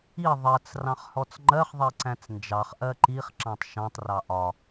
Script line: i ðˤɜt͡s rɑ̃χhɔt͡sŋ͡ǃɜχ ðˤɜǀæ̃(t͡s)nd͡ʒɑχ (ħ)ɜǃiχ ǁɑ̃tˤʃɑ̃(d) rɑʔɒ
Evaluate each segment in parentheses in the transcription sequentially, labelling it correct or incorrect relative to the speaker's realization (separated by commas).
correct, incorrect, incorrect